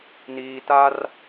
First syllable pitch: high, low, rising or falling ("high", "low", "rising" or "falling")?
high